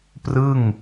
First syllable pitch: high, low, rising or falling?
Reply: falling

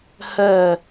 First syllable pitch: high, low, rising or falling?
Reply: falling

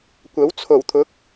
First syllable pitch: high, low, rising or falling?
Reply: rising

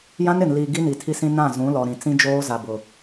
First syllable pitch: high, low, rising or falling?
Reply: high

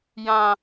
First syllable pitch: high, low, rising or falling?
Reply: low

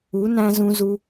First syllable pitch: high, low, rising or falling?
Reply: rising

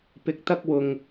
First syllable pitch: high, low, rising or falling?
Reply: rising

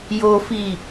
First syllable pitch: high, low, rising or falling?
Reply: high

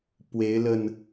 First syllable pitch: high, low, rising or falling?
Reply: rising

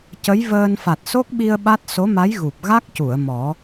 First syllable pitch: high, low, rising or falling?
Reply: rising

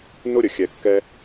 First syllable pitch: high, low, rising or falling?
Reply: high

